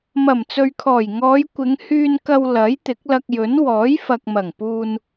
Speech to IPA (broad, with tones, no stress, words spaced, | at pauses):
mɐ˨˩mt͡sɵ˨ɥkʰɔː˨˩j ŋɔː˨˧jkʷɪ˨˧ŋhyː˧nkɐ˧w lɐ˨˥j t̪ɪ˨˥k̚lɐ˧k̚jɵ˨˥n wɔː˨˥jfɐ˨k̚mɐ˨˩ŋpuː˧n